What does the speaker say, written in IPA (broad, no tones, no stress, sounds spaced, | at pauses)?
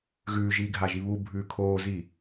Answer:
ɣ ʉː ʒ iː ɡʱ a ʒ i β u bʱ ʉː kʰ oː z i